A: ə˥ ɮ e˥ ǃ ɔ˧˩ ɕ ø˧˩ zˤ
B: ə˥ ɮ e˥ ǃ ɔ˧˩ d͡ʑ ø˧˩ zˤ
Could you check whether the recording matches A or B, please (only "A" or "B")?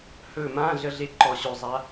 A